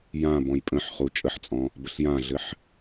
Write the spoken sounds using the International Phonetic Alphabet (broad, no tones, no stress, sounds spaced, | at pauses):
j ã b ɔ̃ j pʼ ə̃ ħ χ u t͡ʃʼ ə ħ t͡sʼ ɔ̃ | b ə ɬ j ã ɮ ɘ ħ